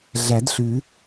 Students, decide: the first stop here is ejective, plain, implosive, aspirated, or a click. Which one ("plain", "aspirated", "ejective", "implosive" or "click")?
plain